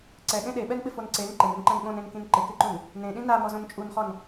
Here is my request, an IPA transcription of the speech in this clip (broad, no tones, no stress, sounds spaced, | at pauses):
ǀ ɛ ɠ ẽ ɗ e ɓ ɛ n ɓ ɪ f o n ǀ e n ǃ ɪ n ɪ n ǃ ɛ̃ n ɠ õ n ẽ n k ĩ n ǃ ɪ k ɪ ǃ ũ n | n ẽ ɗ ĩ n a m ɔ z õ n t͡ʃʼ u n χ ɔ n